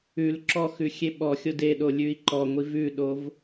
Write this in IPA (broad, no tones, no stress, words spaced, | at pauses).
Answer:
ʉl ǁɔxʉ xʲeɓɔxʲod eɗo lʲʉi̯ǃɔŋʷiv ʉɗov